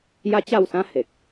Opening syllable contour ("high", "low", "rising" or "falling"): high